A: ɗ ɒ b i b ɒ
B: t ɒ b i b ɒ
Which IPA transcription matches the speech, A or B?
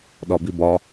A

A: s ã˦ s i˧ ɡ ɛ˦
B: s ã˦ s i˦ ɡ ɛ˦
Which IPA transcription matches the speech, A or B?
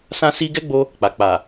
B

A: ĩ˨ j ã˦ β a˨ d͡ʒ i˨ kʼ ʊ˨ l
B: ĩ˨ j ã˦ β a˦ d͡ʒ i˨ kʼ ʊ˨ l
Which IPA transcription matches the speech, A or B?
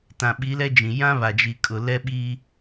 A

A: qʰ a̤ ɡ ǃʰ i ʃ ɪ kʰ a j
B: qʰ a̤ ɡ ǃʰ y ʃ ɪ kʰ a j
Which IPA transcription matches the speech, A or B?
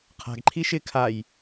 A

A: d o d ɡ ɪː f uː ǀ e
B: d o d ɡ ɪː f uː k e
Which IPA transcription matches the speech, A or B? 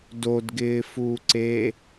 A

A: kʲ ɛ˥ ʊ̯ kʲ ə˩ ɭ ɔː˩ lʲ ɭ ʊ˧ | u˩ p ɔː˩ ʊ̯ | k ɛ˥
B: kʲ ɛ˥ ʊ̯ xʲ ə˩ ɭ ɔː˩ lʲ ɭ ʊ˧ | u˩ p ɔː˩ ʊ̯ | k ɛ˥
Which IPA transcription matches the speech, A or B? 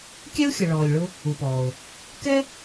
B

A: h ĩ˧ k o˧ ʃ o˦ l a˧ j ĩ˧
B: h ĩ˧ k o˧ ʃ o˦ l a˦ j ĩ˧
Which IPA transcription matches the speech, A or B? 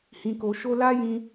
B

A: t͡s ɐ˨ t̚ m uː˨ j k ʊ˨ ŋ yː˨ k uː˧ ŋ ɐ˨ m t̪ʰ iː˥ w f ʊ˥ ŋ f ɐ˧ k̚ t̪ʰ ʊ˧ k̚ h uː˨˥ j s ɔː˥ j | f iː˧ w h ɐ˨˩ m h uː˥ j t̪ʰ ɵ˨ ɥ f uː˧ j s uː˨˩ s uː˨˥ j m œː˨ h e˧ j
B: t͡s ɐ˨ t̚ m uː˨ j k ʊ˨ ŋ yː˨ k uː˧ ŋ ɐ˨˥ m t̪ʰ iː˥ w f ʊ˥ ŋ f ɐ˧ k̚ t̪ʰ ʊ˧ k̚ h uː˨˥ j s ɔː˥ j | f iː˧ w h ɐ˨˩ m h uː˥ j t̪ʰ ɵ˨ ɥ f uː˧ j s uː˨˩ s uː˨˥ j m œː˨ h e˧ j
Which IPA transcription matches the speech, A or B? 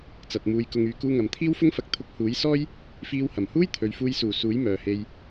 A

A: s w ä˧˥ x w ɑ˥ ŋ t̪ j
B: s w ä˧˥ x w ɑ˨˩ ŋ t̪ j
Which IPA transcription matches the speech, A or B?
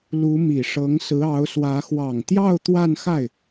B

